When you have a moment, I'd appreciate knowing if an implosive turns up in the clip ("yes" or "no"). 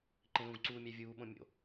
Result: yes